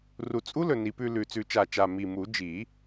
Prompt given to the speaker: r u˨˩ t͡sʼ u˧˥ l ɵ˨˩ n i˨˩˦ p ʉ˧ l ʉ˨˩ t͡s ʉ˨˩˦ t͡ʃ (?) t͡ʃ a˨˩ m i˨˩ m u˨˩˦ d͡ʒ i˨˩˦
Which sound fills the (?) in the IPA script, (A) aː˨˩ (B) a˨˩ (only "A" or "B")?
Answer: B